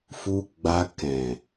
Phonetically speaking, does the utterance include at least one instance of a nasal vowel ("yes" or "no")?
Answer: yes